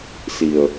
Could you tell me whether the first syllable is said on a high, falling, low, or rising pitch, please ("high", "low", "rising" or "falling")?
low